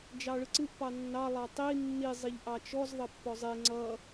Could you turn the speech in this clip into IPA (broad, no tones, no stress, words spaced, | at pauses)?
d͡ʒɑɭɯǀɯʔ pɑnːɑ lˠɑtˤi nːi zˤiʎʔɑt͡ʃɔz ðˤʌpːɔzˤe ŋ͡ǀʌ